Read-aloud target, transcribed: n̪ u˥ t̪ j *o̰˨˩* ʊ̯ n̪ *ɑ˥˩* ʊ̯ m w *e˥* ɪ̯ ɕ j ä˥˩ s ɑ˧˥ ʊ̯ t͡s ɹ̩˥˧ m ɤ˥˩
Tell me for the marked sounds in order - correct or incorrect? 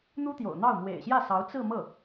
correct, correct, incorrect: ḛ˨˩

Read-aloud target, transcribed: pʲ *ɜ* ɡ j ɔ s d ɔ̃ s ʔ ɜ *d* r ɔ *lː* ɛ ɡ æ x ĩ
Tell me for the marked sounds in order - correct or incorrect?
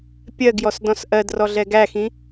correct, correct, incorrect: ɮ

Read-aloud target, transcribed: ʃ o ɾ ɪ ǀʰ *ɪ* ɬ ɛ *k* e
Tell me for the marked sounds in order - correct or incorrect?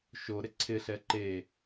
correct, incorrect: ǃ

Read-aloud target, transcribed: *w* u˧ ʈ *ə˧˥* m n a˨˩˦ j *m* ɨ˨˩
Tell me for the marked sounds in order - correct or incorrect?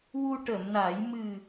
correct, incorrect: ə˨˩˨, correct

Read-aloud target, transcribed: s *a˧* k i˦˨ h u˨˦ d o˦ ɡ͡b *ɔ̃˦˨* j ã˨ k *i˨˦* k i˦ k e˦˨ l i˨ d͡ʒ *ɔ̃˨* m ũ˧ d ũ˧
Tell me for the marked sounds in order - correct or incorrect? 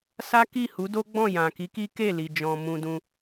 incorrect: a˦, correct, correct, correct

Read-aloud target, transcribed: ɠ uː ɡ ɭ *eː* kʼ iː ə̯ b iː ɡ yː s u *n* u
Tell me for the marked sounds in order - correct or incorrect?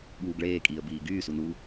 correct, correct

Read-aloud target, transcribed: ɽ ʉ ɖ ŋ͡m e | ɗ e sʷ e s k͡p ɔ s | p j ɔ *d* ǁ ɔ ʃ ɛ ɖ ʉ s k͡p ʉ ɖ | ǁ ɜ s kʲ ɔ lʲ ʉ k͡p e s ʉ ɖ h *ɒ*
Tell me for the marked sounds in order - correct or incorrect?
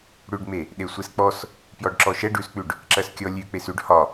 incorrect: ɖ, correct

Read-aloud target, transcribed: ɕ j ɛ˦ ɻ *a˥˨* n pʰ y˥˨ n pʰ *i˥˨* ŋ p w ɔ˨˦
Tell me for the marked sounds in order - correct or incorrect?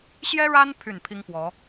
incorrect: a˦, incorrect: i˦

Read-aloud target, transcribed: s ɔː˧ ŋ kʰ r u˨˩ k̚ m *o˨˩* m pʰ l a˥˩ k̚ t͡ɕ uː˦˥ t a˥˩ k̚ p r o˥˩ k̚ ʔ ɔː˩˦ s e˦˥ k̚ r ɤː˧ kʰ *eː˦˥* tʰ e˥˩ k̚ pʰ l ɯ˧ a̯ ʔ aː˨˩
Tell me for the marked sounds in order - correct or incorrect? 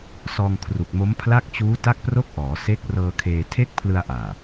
incorrect: o˦˥, incorrect: eː˧

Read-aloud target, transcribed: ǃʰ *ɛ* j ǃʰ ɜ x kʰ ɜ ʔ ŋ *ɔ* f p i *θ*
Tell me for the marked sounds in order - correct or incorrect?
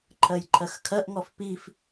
incorrect: ɜ, correct, incorrect: f

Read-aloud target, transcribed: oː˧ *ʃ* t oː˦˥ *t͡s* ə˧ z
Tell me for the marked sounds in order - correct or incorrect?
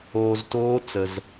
incorrect: z, correct

